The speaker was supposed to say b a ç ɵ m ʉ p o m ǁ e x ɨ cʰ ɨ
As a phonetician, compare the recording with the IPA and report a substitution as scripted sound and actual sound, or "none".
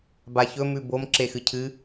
p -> b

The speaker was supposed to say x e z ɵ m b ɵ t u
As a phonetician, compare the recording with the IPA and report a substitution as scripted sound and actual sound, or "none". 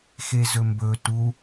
none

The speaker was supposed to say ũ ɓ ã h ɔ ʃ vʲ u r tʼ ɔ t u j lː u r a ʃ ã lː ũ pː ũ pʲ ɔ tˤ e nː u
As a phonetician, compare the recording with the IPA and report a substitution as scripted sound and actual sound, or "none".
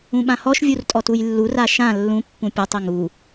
nː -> ŋ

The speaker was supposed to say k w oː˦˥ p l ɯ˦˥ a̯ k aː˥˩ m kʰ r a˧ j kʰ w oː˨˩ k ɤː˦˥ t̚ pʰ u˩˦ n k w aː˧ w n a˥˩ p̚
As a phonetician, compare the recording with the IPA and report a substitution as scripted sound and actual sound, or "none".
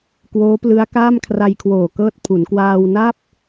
none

